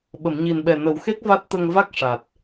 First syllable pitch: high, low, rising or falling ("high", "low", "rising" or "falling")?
low